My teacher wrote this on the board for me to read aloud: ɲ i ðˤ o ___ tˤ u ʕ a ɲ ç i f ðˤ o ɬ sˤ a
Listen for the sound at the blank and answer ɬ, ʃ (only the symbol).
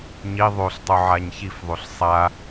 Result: ɬ